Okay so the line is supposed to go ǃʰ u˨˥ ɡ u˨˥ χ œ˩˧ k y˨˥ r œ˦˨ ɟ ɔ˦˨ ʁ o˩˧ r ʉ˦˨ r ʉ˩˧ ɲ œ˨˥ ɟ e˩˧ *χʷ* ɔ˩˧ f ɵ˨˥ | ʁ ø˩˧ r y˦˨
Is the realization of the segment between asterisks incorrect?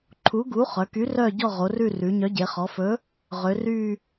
yes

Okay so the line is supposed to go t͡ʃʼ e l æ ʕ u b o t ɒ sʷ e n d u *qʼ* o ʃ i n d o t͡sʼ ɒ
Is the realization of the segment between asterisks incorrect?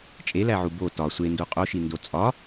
no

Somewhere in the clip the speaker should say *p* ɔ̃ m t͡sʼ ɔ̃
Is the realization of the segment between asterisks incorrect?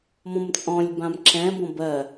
yes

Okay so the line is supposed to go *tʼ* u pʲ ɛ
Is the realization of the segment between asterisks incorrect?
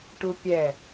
yes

